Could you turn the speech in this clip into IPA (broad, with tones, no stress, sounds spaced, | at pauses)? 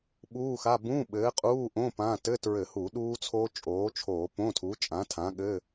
ɓ uː˧˥˧ x a˧˥˧ b ũ˧˥˧ ɓ ɘː˨˥ qʼ uː˧˥˧ ʔ õ˧˥˧ p ã˧˥˧ t ɘ˧˥˧ t ɹ ɘ˧˩˧ h u˧˩˧ ɗ uː˦˥ t͡sʰ oː˦˥ t͡ʃʼ oː˨˥ t͡ʃʰ oː˧˩˧ p õ˧˥˧ tʰ u˨˥ t͡ʃʼ ã˨˥ tʰ ã˨˥ ɠ ɘ˧˥˧